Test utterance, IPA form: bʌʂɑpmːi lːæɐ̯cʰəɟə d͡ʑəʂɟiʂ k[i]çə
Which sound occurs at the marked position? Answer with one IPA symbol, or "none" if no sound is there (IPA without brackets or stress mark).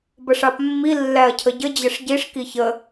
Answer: i